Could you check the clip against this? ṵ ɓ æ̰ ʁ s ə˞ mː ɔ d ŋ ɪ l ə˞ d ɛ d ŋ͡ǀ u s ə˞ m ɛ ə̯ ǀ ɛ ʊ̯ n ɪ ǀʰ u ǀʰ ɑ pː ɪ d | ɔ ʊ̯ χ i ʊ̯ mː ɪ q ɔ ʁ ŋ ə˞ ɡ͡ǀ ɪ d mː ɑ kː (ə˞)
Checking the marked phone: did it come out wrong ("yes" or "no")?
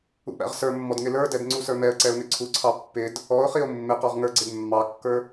no